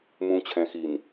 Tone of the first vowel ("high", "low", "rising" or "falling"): low